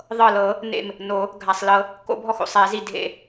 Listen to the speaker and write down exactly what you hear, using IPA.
ðˤ ɤ˧˩ l ɤ˨˩˦ | n ḛ˧˩ m | n o˨˩˦ | ɡʱ a˩ sˤ l ɤ˨˩˦ | k o̰˨˩˦ bʱ ɔ˧˩ x o̰˩ sˤ ɛ˨˩˦ z i˧˩ dʱ ḛ˧˩

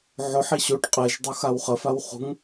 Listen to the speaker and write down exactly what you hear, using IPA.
ʕ o ħ i ɕ o ʈ qʼ e ʒ dˤ u x a w χ ə f a w χ ṳ ŋ

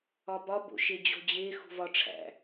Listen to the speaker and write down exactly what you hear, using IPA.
ɒ b ɒ b o̰ ʃ e d͡ʑ o̤ d͡ʑ e x ṳ v ɒ ʈ͡ʂʰ æ̰

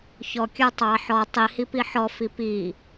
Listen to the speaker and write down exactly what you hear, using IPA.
ç ɔ kʲ ə˞ tˤ ɑ ħ ɔ tˤ i h i p i ħ ɔ f i p i

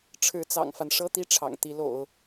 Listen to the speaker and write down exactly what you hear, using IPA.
ʈ͡ʂʰ ɻ̩˧˥ t͡s ɑ̰˨˩ ŋ f a˦ n ʂ ɤ˥ t̪ i˥˩ ʈ͡ʂʰ ɑ̰˨˩ ŋ t̪ i˧˥ l o̰˨˩˦ ʊ̯

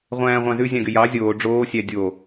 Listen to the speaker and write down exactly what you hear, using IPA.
ʁʷ æ̃ː ʁʷ ɑ̃ z ʉ zʲ ɑ̃ ɡ y j ɑ zʲ oː ɖ͡ʐ oː sʲ æ dʲ o

